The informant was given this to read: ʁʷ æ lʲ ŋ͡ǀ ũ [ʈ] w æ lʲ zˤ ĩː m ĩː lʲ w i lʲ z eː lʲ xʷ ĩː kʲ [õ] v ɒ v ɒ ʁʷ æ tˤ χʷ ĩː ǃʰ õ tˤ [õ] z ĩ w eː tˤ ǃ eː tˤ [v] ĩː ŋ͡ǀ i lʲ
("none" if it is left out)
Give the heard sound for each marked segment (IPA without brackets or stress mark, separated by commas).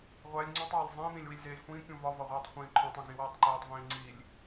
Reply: tˤ, ũ, õ, v